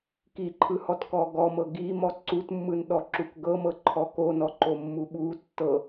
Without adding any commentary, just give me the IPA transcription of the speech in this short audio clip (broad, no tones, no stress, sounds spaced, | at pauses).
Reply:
k i ǃʰ ɯ h ɔ t k ɔ ɡ ɔ m ɤ ɡ i m ɔ ǀ u t mː ɯ n ɗ ɔ ǁ u k ɡ ɤ m ɤ ǃʰ ɔ k o n ɔ ǃ o mː u ɓ u tː ɤ